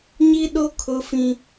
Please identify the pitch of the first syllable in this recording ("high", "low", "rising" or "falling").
high